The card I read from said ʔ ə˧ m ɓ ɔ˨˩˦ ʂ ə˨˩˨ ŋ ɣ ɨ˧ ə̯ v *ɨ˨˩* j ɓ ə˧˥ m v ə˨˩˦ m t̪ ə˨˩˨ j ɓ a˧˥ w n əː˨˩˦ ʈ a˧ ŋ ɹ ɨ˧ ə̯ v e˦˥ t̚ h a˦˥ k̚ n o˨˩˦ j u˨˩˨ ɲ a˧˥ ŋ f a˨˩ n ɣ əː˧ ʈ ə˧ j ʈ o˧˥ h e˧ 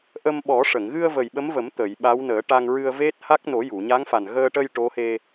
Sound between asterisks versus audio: incorrect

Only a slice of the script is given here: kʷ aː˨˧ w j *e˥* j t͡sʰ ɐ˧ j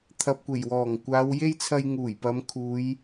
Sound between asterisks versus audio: correct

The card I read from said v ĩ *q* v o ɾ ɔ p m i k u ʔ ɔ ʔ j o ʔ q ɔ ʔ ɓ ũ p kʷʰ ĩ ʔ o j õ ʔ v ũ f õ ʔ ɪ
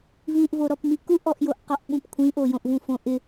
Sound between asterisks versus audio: incorrect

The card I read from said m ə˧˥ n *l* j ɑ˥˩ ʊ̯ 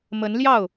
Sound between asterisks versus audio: correct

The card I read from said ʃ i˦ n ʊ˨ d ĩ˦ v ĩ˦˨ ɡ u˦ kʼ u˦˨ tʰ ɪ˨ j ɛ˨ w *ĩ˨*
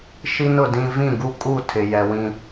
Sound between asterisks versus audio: correct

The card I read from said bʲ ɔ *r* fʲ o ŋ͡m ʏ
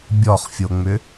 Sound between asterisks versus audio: incorrect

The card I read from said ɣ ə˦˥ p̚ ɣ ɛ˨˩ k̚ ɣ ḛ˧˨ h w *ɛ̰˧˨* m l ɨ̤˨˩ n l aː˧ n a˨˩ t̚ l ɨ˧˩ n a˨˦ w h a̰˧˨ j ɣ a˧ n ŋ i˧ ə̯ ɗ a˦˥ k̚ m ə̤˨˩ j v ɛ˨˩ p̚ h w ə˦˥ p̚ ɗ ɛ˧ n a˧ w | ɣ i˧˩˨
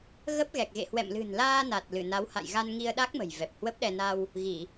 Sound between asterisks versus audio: correct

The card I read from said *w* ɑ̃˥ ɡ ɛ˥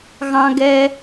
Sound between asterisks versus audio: incorrect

